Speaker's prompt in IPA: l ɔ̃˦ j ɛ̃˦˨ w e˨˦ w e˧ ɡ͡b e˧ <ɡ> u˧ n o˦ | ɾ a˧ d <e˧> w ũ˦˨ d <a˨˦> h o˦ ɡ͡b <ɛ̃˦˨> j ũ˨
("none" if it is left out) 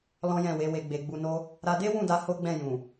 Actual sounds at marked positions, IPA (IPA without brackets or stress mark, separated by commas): ɡ͡b, e˦, a˧, ɛ̃˦˨